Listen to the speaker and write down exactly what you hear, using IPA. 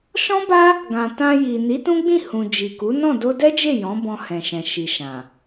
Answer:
ʃ ɔ̃˦ b a˦ | ɡ ã˨ t ã˧ j i˨ n i˨˦ t ũ˦ ɡ͡b ĩ˦˨ h ũ˨ d͡ʒ i˨ k u˨˦ n ɔ̃˦˨ d o˧ d ɛ˦ d͡ʒ e˦˨ j ɔ̃˨˦ b ɔ̃˧ h ɛ̃˨ ʃ ɛ̃˨ ʃ i˨ ʃ ã˨

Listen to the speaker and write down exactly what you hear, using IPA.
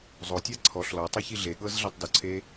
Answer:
zˤ o tʲ a ǀʰ ɔ ɬ l ɔ tˤ ɯ ç i ɮ e ɠ ɤ z ɮ ɛ tˤ d o ǀʰ e

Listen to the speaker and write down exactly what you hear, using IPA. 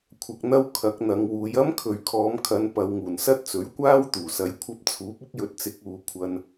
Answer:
kʷʰ ɐ˨ k̚ n̪ ɐ˧ w kʰ ɐ˨˥ k̚ n̪ ɐ˨˧ ŋ w uː˨˧ j ɐ˥ m kʰ ɵ˨ ɥ kʰ ɔː˨˧ m kʰ ɐ˨˧ n p ɐ˨˧ w ŋ uː˨˩ n s ɐ˥ t̚ t͡s ɵ˨˥ ɥ kʷ aː˥ w t̪ uː˨˩ s ɐ˨˧ j kʷʰ ɐ˧ p̚ t͡sʰ uː˨˥ p̚ ɪ˥ k̚ j ɵ˨˥ t̚ t͡s ɪ˨˥ k̚ uː˨˧ kʷʰ ɐ˧ n

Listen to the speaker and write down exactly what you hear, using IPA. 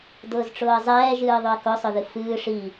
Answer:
d ʊː z ʈ͡ʂ ʊː ə̯ zˤ ɛː ʒ ɨː ðˤ ʊ ə̯ k ʊ sˤ ʊ ð ɨ f ɨː ʂ i

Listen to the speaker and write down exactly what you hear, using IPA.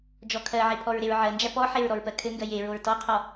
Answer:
d͡ʒ ɔ kʰ ɜ ʕ e pʰ ɔ ɹ ɾ e ɹ ʕ ɜ n d͡ʒ æ p ɔ ħ e ɹ ɾ ɔ ɹ p ɜ kʰ ɘ ŋ ɡ ɜ j e ɹ o ɹ t ɔ qʰ ɔ

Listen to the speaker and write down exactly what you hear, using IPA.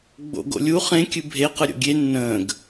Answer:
ɡ͡b o̰ ɡ o̰ lʲ u χ ẽ kʲ ɨ bʱ e q ɯ ɾʲ o̰ ɡʲ e nː ə̃ː ɡ

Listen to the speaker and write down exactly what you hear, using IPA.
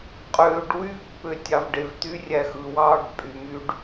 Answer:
qʼ øː ɖ w y v pː ø tʲ ɑ v ɖ e v t̪ y rʲ æ x ɯ w ɑː ɖ pʼ y m y ɖ

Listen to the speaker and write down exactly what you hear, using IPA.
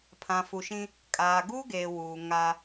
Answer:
pʰ ã˨ f u˨ ʃ ĩ˦ | kʼ aː˨ ɡ uː˦ ɡ eː˨ w uː˨ ŋ a˦

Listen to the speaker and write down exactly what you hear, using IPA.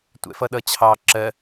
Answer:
tʷ ɛ̰ f ʌ ɗ ʌ t͡ɕʰ ɑ ǁ ɜ

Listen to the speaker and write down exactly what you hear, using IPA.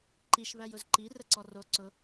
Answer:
ǃ i ʃ β æ j ʊ z ǃ i r ə ǀ ɔ r o ǀ ʊ

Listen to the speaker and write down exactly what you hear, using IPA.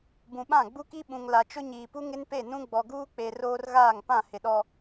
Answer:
b ũ˨ ɓ ã˦˨ ɡ͡b u˦ k i˦ ɓ ũ˨ ŋ l a˨ t͡ʃ ʊ˦ ɲ iː˨ p u˦ ŋ ɪ˦ n p e˦˨ n ũ˦ ɡ͡b ɔ˨ ɡ uː˦ k͡p e˨ r oː˦ r ɣ aː˦˨ ŋ p ã˦˨ h ɪ˨ ɗ ɔ˨

